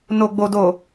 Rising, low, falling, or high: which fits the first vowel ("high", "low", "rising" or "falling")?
low